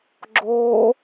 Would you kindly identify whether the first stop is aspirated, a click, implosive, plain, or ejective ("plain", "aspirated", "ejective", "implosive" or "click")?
click